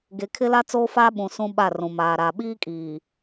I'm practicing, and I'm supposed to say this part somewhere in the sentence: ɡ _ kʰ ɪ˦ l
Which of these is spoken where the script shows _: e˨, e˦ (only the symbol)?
e˨